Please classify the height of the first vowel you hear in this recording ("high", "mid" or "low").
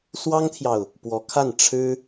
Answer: low